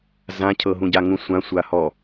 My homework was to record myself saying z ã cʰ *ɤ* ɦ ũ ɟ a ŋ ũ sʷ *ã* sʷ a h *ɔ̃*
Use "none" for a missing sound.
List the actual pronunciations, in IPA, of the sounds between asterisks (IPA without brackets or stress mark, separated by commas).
ɤ, ã, ɔ